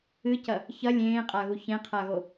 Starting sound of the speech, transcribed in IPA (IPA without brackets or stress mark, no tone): ɨ